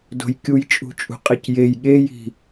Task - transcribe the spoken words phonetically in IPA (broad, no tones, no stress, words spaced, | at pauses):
do̤jkʲujt͡ʃʼṳt͡ʃʼṳ qʼicjej ɠeji̤